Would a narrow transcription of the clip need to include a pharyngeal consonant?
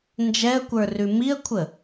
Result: no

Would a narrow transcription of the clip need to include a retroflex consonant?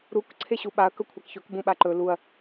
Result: no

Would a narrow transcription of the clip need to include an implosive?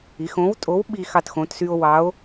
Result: yes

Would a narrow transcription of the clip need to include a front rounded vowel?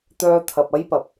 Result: yes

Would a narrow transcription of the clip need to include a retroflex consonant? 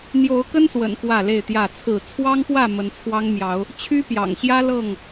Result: no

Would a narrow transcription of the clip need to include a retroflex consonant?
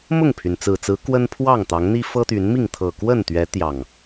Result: no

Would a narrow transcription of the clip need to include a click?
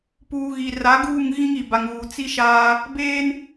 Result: no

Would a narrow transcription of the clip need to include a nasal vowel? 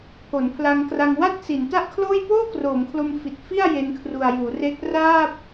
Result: no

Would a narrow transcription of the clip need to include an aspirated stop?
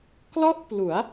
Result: no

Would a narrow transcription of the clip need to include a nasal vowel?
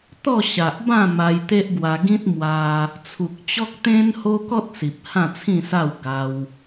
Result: yes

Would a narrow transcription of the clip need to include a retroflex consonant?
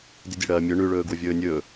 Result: yes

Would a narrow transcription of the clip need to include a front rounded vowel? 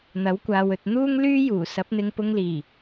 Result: yes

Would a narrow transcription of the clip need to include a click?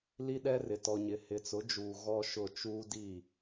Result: no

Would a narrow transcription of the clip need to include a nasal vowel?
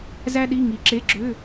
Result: no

